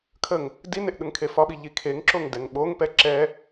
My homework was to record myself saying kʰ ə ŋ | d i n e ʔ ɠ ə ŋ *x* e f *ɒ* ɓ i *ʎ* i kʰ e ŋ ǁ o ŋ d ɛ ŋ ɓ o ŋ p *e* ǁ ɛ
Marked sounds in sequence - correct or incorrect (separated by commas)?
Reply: incorrect, correct, correct, incorrect